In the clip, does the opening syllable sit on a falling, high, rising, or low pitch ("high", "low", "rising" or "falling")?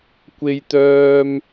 high